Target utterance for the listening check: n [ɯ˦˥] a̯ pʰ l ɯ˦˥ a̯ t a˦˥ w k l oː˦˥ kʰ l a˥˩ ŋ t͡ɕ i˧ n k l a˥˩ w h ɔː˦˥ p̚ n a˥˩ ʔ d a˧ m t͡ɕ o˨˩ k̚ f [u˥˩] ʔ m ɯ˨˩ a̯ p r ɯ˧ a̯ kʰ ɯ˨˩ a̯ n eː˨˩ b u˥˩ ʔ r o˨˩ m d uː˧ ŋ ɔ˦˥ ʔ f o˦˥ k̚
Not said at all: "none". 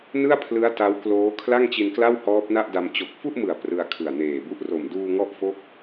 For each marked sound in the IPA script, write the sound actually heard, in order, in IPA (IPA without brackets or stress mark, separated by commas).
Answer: ɯ˥˩, u˥˩